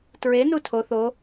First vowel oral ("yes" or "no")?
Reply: yes